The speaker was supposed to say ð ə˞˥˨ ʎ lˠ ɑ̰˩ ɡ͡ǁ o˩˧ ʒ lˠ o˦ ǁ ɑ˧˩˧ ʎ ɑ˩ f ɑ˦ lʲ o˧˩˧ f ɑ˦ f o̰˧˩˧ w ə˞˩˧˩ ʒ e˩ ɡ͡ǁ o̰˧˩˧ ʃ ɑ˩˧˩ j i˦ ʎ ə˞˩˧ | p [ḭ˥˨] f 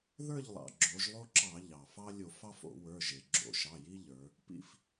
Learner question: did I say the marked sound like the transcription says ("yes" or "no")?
yes